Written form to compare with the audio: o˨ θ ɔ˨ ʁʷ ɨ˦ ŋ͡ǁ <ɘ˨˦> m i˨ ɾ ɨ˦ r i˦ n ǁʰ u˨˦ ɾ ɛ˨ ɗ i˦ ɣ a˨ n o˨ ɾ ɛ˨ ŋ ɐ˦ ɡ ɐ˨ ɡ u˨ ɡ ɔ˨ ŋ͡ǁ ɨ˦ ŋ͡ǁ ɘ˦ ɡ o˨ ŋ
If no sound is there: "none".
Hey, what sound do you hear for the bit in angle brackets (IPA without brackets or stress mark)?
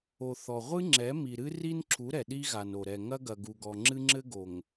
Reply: ɛ˨˦